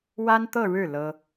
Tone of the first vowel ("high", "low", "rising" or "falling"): high